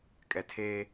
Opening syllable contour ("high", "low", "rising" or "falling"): low